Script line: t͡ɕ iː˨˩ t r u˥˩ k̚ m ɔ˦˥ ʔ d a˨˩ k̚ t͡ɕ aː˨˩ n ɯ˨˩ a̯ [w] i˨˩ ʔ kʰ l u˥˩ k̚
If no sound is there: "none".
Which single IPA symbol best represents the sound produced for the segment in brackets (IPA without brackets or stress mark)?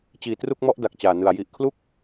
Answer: j